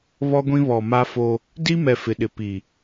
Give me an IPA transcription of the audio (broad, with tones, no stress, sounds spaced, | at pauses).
β ɔ˦ ɡʷ ĩ˦ β ɔ˨ m a˦ f o˦ | d i˦ m ɛ˨ f ɪ˨ ɗ ɪ˨ p i˨